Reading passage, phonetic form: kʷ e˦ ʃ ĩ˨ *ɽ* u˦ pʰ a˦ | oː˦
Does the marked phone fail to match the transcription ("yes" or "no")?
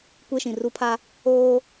yes